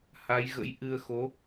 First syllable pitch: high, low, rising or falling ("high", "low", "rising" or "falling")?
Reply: rising